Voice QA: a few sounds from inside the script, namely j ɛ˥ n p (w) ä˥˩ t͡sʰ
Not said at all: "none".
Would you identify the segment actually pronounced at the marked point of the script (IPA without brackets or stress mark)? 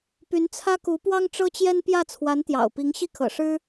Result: j